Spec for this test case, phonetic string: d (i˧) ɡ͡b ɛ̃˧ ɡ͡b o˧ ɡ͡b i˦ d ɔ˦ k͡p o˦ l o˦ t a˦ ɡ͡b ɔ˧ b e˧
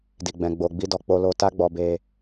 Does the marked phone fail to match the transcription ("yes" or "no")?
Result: no